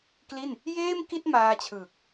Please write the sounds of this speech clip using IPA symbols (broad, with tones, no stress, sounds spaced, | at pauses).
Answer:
k l i˥˩ n | j eː˥˩ m k i˥˩ t̚ m aː˧ t͡ɕʰ ɯː˨˩ k̚